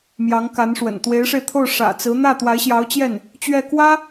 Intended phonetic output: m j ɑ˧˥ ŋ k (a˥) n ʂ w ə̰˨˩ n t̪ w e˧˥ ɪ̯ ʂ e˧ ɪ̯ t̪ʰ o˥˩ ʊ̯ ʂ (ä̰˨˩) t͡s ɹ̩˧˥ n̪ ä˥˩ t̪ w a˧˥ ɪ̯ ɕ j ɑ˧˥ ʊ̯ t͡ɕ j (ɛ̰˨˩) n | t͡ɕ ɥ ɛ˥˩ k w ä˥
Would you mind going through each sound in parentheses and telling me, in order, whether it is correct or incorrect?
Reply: incorrect: a˧˥, correct, incorrect: ɛ˥˩

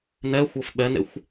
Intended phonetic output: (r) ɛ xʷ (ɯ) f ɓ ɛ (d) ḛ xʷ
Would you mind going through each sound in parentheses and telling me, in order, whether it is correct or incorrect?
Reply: incorrect: n, incorrect: ɤ, incorrect: n

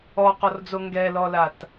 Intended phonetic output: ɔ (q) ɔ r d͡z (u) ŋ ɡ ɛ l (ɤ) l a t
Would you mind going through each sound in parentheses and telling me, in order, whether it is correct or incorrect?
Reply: correct, incorrect: o, incorrect: ɔ

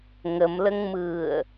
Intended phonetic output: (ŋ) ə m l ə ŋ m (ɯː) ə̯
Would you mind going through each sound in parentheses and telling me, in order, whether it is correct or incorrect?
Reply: correct, correct

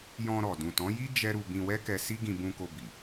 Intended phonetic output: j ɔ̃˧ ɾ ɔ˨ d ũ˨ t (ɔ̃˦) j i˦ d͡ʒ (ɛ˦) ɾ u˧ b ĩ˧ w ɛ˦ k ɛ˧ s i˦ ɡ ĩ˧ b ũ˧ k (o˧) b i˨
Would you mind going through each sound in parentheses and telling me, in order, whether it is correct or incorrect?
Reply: incorrect: ɔ̃˨˦, correct, correct

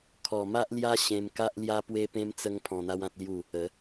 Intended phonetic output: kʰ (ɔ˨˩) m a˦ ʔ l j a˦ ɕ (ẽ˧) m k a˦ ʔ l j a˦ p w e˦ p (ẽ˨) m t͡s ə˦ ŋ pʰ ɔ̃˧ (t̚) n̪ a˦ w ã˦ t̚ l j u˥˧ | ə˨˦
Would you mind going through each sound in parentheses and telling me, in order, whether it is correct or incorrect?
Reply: correct, correct, incorrect: ẽ˦, incorrect: none

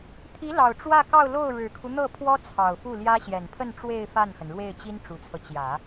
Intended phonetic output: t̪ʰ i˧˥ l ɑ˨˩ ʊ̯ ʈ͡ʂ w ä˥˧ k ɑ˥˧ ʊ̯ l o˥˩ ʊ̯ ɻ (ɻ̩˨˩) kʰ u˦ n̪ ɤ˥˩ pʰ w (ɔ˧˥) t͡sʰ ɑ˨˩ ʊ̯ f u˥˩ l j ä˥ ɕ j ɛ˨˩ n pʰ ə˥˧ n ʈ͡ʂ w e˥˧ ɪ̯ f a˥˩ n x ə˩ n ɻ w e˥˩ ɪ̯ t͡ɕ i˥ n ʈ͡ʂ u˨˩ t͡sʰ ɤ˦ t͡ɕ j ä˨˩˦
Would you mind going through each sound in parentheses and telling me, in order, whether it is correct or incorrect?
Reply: correct, incorrect: ɔ˥

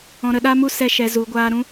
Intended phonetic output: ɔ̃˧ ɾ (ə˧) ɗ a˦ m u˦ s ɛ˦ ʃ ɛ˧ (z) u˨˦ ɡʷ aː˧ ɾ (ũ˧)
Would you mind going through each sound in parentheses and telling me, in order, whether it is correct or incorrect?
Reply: correct, correct, incorrect: ũ˦

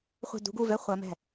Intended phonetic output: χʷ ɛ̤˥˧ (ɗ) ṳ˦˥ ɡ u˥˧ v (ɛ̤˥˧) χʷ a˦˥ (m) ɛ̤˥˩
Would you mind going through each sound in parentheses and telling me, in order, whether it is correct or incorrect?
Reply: incorrect: d, incorrect: ɛ˥˧, correct

